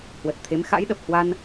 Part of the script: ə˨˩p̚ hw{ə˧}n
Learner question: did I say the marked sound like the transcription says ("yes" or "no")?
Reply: no